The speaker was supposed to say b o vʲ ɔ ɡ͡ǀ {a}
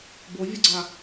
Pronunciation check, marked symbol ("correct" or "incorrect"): correct